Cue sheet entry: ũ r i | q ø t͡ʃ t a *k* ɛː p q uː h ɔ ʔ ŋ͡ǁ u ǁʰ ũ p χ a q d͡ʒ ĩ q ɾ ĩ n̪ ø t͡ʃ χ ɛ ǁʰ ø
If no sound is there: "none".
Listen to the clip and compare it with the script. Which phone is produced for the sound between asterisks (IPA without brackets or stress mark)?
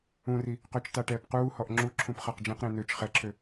ʈ